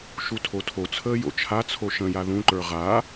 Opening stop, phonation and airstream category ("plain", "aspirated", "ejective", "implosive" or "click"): aspirated